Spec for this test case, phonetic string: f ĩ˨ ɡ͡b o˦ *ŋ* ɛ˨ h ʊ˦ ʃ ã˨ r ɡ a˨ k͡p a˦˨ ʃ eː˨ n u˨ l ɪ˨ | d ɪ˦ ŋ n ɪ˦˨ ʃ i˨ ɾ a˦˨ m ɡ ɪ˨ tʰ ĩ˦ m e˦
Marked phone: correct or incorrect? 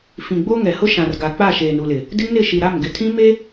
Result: correct